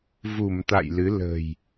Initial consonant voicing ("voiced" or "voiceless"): voiced